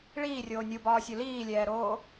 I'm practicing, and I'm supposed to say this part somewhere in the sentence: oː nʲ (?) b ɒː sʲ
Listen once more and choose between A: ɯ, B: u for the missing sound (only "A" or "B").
B